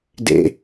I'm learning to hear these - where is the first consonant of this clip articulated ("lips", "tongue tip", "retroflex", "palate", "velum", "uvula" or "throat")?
tongue tip